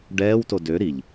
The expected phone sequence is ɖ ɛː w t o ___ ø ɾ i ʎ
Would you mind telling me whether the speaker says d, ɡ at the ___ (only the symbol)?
d